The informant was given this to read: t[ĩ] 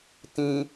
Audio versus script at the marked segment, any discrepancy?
no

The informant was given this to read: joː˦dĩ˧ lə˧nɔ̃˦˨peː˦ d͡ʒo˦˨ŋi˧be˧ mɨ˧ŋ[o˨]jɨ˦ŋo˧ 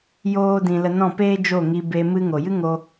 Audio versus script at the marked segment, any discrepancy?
no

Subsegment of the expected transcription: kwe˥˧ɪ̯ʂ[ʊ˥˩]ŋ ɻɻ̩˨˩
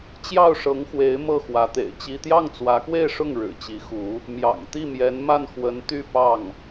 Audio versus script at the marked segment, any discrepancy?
no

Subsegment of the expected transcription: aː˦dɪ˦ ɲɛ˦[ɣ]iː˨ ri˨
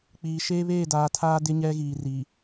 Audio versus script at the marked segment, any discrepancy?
no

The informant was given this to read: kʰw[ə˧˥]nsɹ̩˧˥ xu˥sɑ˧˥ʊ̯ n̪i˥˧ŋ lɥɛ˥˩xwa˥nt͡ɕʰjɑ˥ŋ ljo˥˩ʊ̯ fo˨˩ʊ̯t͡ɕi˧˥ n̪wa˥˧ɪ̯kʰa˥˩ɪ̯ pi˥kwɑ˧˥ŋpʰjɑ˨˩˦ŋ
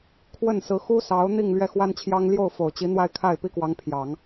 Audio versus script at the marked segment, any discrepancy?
yes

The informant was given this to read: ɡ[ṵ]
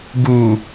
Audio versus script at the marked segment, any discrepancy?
yes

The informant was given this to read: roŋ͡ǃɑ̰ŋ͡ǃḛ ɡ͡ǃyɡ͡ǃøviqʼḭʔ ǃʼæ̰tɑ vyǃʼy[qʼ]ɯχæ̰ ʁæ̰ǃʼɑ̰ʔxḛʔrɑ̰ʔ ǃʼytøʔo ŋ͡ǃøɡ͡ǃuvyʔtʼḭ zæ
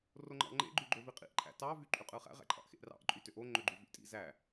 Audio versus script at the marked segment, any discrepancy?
no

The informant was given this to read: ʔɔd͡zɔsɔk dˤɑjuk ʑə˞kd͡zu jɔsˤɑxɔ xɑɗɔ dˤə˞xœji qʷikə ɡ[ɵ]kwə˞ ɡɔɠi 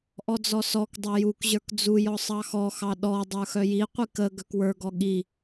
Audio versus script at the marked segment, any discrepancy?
yes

